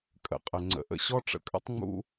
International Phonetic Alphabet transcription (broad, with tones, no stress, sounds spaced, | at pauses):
kʼ ə̰˨ qʼ ə˨ ŋ͡ǀ ə̰˨ ʔ ə̰˧ ɕ ɔ˦ ʈ͡ʂ ə̰˧ kʼ ə̰˦ tˤ ŋ͡m ṵ˦